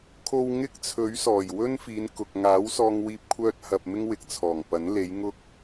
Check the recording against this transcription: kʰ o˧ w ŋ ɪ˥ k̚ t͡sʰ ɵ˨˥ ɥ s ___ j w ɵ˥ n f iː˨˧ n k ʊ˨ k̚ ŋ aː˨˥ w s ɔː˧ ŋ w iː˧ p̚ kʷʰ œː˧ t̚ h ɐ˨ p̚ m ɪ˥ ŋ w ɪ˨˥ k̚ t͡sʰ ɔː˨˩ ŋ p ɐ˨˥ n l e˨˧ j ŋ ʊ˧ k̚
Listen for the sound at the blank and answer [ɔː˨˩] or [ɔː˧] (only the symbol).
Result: ɔː˨˩